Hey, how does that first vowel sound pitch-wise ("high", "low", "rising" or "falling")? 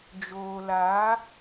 low